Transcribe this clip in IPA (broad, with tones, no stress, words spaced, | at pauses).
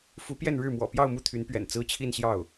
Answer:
fu˧˥pjɛ˥˧nɻɻ̩˥˩mwɔ̰˨˩ pjɑ˥˧ʊ̯mu˥˩t̪ʰy˧˥npɥɛ̰˨˩n t͡sɹ̩˥t͡ɕʰi˥˧nɕjɑ˥˩ʊ̯